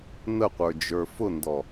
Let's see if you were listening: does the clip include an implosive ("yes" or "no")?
no